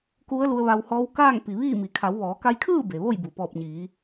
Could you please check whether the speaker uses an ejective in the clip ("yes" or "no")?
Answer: no